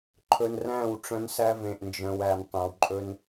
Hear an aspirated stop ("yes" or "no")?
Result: yes